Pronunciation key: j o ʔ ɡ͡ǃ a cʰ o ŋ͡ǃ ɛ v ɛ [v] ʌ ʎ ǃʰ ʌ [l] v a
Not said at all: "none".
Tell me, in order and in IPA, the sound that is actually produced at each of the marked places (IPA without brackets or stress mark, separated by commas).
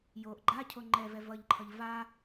v, ʎ